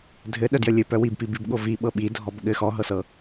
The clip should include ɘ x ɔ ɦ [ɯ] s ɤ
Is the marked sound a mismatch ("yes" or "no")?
yes